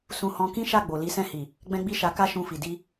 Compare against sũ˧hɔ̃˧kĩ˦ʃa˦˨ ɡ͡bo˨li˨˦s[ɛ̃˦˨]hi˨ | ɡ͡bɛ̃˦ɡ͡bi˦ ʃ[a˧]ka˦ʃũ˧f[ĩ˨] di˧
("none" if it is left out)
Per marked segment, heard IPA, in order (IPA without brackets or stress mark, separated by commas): ɛ̃˦˨, a˧, i˨